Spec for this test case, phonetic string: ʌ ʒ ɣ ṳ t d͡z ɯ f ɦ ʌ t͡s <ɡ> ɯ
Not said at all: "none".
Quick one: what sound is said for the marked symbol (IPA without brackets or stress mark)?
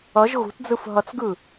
ɡ